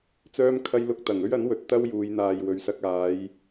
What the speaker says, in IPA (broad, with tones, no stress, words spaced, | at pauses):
t͡sœː˥mkʰɐ˥j lʊ˧k̚t̪ɐ˨˩ŋɵ˥ɥɐ˨˥n wɵ˨˥t̚t̪ɐ˥wjuː˨˧j n̪aː˨jwɵ˨˧ɥsɐ˧k̚ aː˨˧j